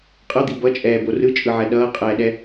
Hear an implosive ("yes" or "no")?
yes